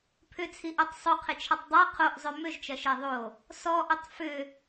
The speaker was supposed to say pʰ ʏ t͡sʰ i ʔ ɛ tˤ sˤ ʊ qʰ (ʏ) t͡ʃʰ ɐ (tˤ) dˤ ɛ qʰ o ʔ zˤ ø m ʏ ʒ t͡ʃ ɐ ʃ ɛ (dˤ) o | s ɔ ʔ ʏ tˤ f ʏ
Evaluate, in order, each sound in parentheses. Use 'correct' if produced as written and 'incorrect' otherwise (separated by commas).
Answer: incorrect, correct, incorrect